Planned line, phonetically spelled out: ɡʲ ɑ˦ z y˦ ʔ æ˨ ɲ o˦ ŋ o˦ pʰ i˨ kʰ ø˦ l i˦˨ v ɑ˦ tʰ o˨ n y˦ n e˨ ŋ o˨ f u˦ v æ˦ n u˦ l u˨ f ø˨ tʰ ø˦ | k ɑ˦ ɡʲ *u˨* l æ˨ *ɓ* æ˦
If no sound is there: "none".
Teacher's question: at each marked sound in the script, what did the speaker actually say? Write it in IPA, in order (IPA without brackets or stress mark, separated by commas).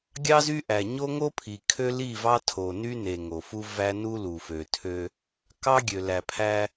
ø˨, pʰ